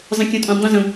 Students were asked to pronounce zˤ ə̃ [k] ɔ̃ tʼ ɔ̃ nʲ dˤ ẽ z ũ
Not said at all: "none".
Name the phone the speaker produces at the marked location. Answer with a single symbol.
kʲ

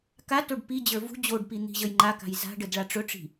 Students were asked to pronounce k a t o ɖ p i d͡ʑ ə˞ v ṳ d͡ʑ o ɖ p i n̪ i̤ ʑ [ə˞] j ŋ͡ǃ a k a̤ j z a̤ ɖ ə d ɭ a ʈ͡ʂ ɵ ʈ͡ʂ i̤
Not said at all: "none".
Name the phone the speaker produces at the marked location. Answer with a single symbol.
ə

